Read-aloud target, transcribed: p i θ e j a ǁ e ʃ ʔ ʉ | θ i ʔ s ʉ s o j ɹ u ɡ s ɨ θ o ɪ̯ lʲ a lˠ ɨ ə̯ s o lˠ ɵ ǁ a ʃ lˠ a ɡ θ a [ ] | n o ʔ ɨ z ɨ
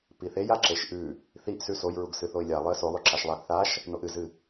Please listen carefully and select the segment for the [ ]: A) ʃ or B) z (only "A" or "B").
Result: A